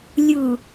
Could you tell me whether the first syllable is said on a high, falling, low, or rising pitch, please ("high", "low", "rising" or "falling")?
low